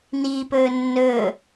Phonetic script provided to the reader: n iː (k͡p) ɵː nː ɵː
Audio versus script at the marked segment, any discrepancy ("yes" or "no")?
yes